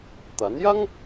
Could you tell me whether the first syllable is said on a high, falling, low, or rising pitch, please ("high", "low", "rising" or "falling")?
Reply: rising